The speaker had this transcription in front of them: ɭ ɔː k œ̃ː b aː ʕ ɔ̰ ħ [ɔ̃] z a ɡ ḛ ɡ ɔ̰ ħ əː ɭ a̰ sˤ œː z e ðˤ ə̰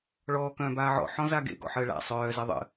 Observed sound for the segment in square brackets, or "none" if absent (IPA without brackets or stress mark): ɔ̃